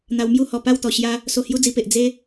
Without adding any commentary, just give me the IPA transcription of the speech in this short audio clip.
n̪ a˧ w m j u˦ h ɔ˨˩ p a˥˧ w t̪ ɔ˨˩ ɕ j a˧ | s o˧ h j u˦ d͡z i˧ p e˨ ʔ d͡z e˦

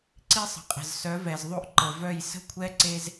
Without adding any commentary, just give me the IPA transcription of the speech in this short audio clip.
ǀ i˦ sˤ ə̤˨ qʼ ə̤˨ z s œ˨˦ v ɛ˨ z ðˤ o˦ ʔ ǃ ə˨ v œ˦˨ j s ə̤˦ kʷʰ ɛ˦ ǀ e˦ z

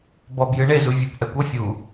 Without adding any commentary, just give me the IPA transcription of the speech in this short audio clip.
b ɔ b j ɨ ɳ e z u vʲ o b ʔ ɛ kʷ ɔ fʲ u

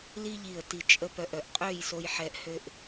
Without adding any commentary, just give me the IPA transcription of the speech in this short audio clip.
l i˥ ʎ i˧˩ ə̯ t i˧˩ t͡ʃʼ ə˧ p œ˧˩ ʔ œ˧˩ ʔ qʼ ø˥˧ j s o˧ j ħ ɛ˧ ʔ h ø˥ ʔ

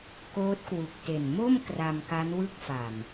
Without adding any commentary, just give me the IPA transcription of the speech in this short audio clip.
k oː˦˥ t̚ k w u˨˩ k̚ t e˨˩ n m o˥˩ m k r a˧ m k a˦˥ n w ɯ˥˩ k̚ f a˨˩ m

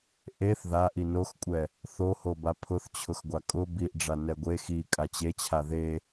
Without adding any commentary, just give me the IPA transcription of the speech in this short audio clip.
ʔ e θ ð a ʔ i n o x kʷʼ ɛ | θ o h o b a pʰ ʊ θ t͡ɕʰ ʊ x ɡʷ a kʼ ʊ b i ʔ ɖ͡ʐ a n ɛ ɡʷ e x i kʼ a t͡ɕ e t͡ɕʰ a ð e

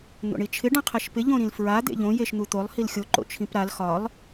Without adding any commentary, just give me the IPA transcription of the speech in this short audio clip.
n̪ o̰ ɳ i t͡ʃʰ ɪ ɖ ã qʰ e ʃ p ɪ ʎ õ ɾ ĩ l f ɹ a d̪ ḛ ʎ õ j e ʃ n̪ u t̪ o lˠ h i l xʲ o ǃ o̰ t͡ʃʰ ĩ p ɾ a l x ɒ lˠ

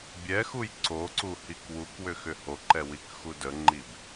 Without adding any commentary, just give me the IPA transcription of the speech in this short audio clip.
bʲ ɛ x u j ǀ o ǀ u h i k w u k w ʏ x ʏ h o ǃ ɛ w i k x u d ə ŋ͡ǃ i b

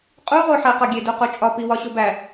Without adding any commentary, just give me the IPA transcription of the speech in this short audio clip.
qʼ u ʁ o ħ æ q ɒ ɡʲ e d u q o t͡ʃʼ ɒ p i w ɒ ɕ o b æ

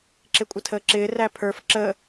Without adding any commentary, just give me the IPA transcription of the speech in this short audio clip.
ǁ ɪ kʷʼ ə tʰ əː ǁ ɪː r æ pʰ ə˞ f ǁ ə

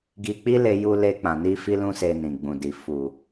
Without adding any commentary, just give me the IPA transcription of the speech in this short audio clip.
ɡ i˧ k͡p i˦ l e˧ j u˧ l e˧ k͡p ã˨ n i˧ f i˦ l ũ˦ s e˧ n ĩ˨ ɡ͡b ũ˨ d i˨ f u˨

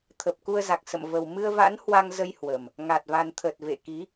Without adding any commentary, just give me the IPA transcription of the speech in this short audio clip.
t̪ʰ ə˨˩ p̚ k u˧ ə̯ z a˨˩ k̚ s ə̰˧˨ m v ə˨˩ w m ɨ˧ ə̯ v a̰˧˥ n h w a˧ ŋ z ə˧ j h w ə˨˩ m | ŋ a˨˩ t̚ v a˨˩ n t̪ʰ ə˨˩ t̚ v ḛ˧˨ k i˨˦

